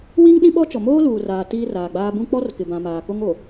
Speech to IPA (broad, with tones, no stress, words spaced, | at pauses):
wi˦ŋ ɗĩ˦ɓɔ˦ t͡ʃɔ˨moː˦luː˨raː˨ tiː˦raː˨ɡ͡baː˦ bũ˦ k͡pɔ˦rkɪ˨bã˨ maː˨ko˦ŋo˨